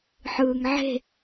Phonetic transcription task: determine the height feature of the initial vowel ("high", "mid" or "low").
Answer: high